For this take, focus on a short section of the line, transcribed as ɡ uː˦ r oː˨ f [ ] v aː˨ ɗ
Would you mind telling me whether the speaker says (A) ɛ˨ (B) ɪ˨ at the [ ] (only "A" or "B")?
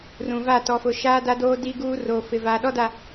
B